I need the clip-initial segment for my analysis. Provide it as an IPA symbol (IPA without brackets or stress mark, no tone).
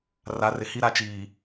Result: r